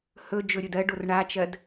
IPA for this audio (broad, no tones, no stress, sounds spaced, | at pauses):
h ɵ d͡ʒ ɵ ɾʲ ɵ d ɜ ɖ o r ɳ a t͡ʃ ɜ d